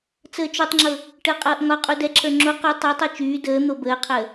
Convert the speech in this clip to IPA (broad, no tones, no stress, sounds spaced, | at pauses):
t͡s əː t͡ʃ o tˤ ŋ͡ǁ ɤ | ʈ əː qʼ ɤː ʔ ŋ ɒ qʼ u d ɛ ǁʰ ə˞ ŋ͡ǁ o q o tˤ ɤ tˤ ɤ t͡ʃ yː d əː n̪ o b əː qʰ əː